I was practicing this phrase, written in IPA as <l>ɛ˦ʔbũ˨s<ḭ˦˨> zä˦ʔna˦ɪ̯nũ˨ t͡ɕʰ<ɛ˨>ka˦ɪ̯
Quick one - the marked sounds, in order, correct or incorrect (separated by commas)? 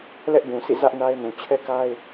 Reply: correct, correct, incorrect